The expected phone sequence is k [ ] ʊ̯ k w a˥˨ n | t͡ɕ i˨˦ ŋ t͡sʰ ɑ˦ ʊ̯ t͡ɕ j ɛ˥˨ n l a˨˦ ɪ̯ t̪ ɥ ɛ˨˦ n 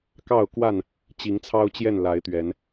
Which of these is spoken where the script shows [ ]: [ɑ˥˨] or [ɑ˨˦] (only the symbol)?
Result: ɑ˥˨